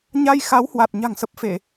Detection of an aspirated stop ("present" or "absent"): absent